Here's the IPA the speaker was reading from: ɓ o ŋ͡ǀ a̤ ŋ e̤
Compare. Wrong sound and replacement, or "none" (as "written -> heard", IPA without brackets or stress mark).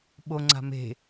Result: ŋ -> m